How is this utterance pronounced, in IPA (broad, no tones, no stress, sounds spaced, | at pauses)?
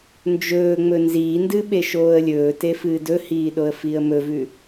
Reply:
n d͡ʒ ɵː ŋ͡m ɵ n z iː n d ɨ ɓ e ʃ oː ə̯ lʲ ɵː t e f ɨː d ɵ h iː ɗ o ə̯ f i ə̯ m ɵ v ʉ